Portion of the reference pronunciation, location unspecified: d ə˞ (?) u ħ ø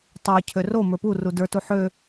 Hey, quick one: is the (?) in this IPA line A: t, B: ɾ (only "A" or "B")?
A